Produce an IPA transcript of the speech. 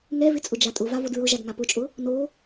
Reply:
ŋ ɛ v ɪ t͡sʼ ʊ d͡ʒ a tʼ ʊ v a v o d ɹ ʊ ʒ a d ŋ a p ʊ t͡ʃʼ ʊ | n o

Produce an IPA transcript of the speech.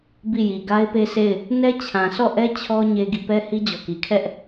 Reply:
b i˦˨ j i˨ ɡ a˦ ɪ̯ p e˦ sʰ e˦˨ ɪ̯ | n ɛ˦ t͡ɕʰ ã˨ s ɔ˦˨ ʔ ɛ˦ t͡ɕʰ ɔ˦ ɲ e˦ ɡ i˦˨ p ɛ˦ h i˦ d͡ʑ ɔ˨ k i˨ kʰ ɛ˦ ʔ

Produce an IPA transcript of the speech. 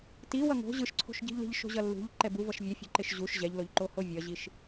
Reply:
t i w ʌ ŋ o̤ ʑ ɯ ʃ ǀʰ o̤ ʃ ɟ i̤ ʎ l i̤ ʎ ʃ o̤ ʑ ʌ lː ṳ ʎ ǃ ɛ b u v ʌ ʃ vʲ ɛ fʲ o̤ ǃ e ʃ ʑ u ʃ ʑ ɛ ʎ l o ʎ ǃ o h o vʲ ʌ ʑ i ʃ

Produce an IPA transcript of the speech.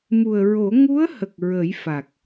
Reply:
m u˨˩ ə̯ ɹ o˨˩˦ ŋ u˧˥ ə̯ h ə˨˩ k̚ ɹ ə˨˩˦ j f a˨˩ k̚

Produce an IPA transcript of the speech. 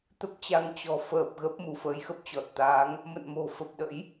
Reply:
t̪ ə˦˥ p̚ t͡ɕ a˧ ŋ t͡ɕ ɔ̤˨˩ f əː˨˩ p̚ ɣ ə˦˥ p̚ m u˨˦ f əː˨˦ j x ə˦˥ p̚ t͡ɕ ɔ˨˩ t̚ t̪ aː˨˦ ŋ | m ə̰˧˨ n m o̤˨˩ f ə˨˩ p̚ ɗ ə̰˧˥ j

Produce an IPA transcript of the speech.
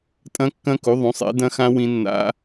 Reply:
tʼ ɐ̃˦˥ kː ɐ̃˦˥ k u˨˥ ðˤ ũ˨˥ sˤ ḛ˨˥ d ɐ̃˦˥ x ã˦˥ w ĩ˦˥ nː a̰˦˥

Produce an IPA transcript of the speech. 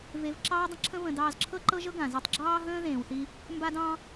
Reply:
v e˧ v ǁ ɑː˥ dˤ ə̃˥ ǁʰ ə̃˥ β ə̃˧ d ɑː˧ z ǁʰ ɤ˥ ǃ ɤ˥ ʒ ɤ˥ ɡ ã˩ z ɤ˧ tˤ ɡ͡ǁ ɑː˥ ɦ ə̃ː˥ ð ẽː˩ w θ i˧ | m b a˥ d ɑ̃˥

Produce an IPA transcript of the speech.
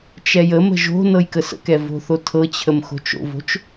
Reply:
t͡ʃ ɛ j ə m ə̤ ʒ o̤ n ɤ j k ə s ə̰ k ɛ v o̤ θ o tʰ ɤ t͡ɕʰ ə m x o̤ t͡ʃ o̰ v o̤ t͡ʃ

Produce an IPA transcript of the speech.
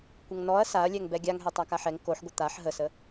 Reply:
kʷ ə ŋ n ɔ ɐ̯ s a ɐ̯ lʲ ɛ ŋ b ɛ ɡʲ a ŋ ɦ ɛ tˤ a k a ħ ɛ ŋ k o ħ ɡʷ ə t̪ a ħ ɦ ə s ə

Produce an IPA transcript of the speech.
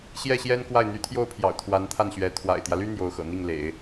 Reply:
ɕ j ɛ˥˩ ɕ j ɛ˥ n k w a˥˩ ɪ̯ n̪ y˧˥ t̪ʰ j o˥˩ ʊ̯ pʰ j ɑ̰˨˩ ʊ̯ t̪ʰ w a˧˥ n t̪ʰ a˥˩ n ɕ ɥ ɛ˧˥ t̪ʰ w a̰˨˩ ɪ̯ t̪ j ä˦ l y˥ n̪ j o˧˥ ʊ̯ x ɤ̰˨˩ n̪ i˥˩ ŋ l ḛ˨˩˦ ɪ̯

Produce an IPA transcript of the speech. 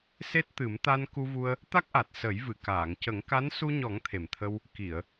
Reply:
s e˦˥ t̚ t̪ ɨ˨˩˦ m t̪ a˧ n k u˧ v u˧ ə̯ | t̪ a˦˥ k̚ ʔ a˨˩ t̚ s ə˨˩˦ j v ɨ˨˩˨ k aː˨˩˨ ŋ c ə˨˩˦ ŋ k a˧˥ n s u˧ ɲ ɔ˨˩˦ ŋ t̪ʰ e˨˩ m t̪ʰ ə˧ w | k i˨˩˨ ə̯

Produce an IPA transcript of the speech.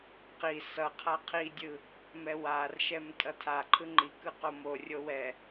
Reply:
q i s ʌ qʰ a qʰ i dʲ ɯ | m ɛ w a r ʃ ɛ m tʼ ʌ tʰ a ǃʰ ɯ ŋ͡ǃ i k ɯ q o m o rʲ o w ɛ

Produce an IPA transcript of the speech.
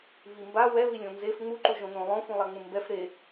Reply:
β i m b a w ɛ β i lʲ õ n z e f ŋ͡m u ǃ u ʒ õ n õ lˠ õ f ũ lˠ a ŋ͡m ũ m b ɛ f ɾ e

